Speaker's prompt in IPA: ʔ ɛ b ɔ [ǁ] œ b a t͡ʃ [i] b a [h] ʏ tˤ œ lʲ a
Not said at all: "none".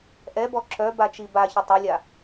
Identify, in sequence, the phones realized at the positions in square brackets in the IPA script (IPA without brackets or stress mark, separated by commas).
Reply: ǁ, i, ç